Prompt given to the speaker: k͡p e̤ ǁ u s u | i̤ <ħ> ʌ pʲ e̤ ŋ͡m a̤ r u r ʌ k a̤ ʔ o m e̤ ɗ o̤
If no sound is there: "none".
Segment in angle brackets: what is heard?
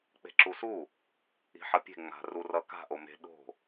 ħ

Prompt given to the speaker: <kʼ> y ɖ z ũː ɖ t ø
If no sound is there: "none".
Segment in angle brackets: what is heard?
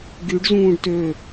ɡ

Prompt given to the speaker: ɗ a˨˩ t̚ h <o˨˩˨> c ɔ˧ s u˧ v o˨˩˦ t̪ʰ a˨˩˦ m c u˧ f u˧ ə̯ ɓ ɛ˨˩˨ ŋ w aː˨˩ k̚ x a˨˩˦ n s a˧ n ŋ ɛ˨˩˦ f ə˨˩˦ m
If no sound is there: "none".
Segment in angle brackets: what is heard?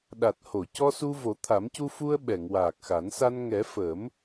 o˨˩˨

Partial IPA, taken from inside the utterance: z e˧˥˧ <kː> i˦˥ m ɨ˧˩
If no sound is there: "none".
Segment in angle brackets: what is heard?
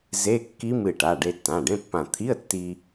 kː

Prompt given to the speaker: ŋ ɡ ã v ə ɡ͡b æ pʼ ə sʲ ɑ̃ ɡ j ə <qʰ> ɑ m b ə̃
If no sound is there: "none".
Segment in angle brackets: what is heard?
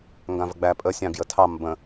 tʰ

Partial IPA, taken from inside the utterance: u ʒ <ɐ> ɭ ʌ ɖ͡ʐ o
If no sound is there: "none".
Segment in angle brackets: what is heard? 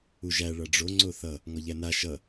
æ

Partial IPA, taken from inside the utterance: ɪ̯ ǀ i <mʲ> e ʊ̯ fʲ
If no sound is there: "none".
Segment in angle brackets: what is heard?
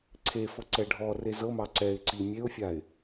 mʲ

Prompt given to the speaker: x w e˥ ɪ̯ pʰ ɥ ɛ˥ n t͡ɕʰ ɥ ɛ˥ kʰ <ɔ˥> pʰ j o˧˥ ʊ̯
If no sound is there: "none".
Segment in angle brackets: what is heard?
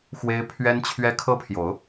ɤ˥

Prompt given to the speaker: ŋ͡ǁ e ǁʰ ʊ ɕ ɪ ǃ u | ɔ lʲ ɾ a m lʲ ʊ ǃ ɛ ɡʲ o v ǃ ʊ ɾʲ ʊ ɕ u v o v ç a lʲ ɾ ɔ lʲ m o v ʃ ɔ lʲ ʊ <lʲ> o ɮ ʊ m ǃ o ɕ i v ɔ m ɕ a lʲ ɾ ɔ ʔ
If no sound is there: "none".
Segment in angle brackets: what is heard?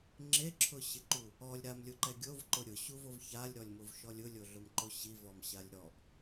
lʲ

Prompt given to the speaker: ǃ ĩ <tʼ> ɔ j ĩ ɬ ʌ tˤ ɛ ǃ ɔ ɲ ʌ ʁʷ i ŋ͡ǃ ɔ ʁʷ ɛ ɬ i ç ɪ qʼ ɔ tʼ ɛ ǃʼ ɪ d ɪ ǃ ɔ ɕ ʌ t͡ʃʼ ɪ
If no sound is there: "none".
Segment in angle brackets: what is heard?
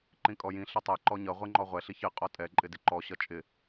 kʼ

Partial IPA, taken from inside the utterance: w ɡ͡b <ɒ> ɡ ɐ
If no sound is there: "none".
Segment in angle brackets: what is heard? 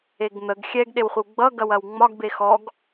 ʌ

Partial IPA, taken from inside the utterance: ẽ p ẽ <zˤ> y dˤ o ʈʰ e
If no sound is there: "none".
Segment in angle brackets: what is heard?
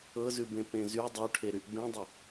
z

